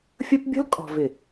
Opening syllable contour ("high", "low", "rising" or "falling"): high